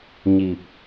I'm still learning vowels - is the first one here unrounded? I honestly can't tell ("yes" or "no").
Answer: yes